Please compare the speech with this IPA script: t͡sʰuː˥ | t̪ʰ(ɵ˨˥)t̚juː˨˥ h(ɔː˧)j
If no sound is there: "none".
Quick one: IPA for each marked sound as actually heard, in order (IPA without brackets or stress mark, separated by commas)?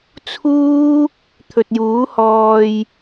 ɵ˨, ɔː˧